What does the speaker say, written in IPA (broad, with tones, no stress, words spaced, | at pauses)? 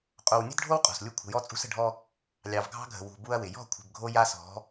qʼo˨wnʲə̤˦dɖʱo˦w qʼɔ̤˨slʲu˦ kʷʰə̤˨jɔ˦t͡sʼṳ˦s ə̤˨ɖʱɔ˦ | lʲɑ˨vɡʱɑ̤˦ɡʱə̤˨ wṳ˨ bu˦ɐ̯wɪ˨ jɔ̤˦˨kʷʰə̤˨b ɡʱo˦ja˦ sɔ̤˨˦